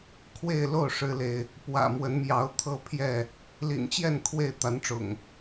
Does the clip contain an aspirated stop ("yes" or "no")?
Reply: yes